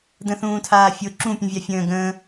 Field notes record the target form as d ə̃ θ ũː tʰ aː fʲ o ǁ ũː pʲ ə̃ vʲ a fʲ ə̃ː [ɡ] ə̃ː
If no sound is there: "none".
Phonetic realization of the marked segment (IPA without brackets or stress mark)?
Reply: ɡ